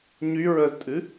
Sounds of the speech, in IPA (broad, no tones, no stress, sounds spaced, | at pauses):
ɲ y ɹ ə z tʼ ɨ